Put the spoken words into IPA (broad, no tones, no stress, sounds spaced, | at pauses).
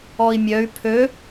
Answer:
ɔ i̯ mʲ œ y̯ pʰ ø